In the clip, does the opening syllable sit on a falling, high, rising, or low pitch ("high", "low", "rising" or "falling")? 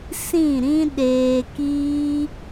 falling